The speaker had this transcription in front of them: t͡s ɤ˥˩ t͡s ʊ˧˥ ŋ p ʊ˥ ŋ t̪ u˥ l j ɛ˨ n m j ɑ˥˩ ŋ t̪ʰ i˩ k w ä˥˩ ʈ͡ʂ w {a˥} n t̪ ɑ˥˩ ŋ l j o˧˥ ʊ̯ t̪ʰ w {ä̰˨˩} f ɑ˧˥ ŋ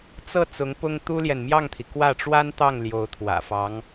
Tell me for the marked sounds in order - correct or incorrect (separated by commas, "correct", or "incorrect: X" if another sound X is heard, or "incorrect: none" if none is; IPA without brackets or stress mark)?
correct, correct